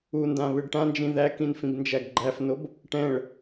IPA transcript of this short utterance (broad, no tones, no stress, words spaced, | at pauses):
undã βɨɖʈãnd͡ʒĩ ðækĩn fĩbnd͡ʒæɡɡ͡ǃæfnob | ʈɛ̃ɭ